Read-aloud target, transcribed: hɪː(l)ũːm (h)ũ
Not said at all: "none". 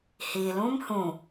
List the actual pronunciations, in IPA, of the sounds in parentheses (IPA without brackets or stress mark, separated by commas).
l, h